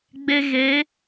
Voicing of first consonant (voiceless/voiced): voiced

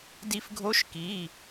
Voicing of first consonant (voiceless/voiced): voiced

